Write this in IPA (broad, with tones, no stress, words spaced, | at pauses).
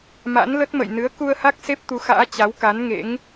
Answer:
ma̰˧˥nlə˦˥t̚mə̰˧˨j nɨ˨˦ə̯ku˧ə̯ha˦˥k̚ se˦˥p̚t̪u˨˦xa̰ː˧˥ t͡ɕa˨˦wka˨˦nŋḛ˧˥ŋ